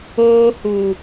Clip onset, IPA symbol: oː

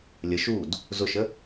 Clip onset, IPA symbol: lʲ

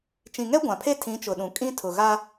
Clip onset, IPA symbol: t͡ʃ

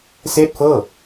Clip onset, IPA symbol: s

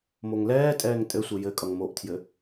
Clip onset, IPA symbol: m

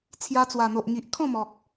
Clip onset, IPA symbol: t͡sʰ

